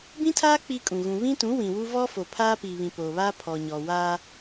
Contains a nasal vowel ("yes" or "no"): yes